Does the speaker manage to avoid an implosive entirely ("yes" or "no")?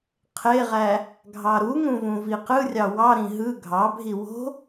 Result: yes